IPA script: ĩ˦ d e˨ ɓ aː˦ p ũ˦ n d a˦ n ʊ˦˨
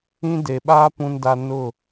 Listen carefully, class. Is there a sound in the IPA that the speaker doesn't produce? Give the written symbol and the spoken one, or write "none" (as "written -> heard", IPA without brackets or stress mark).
none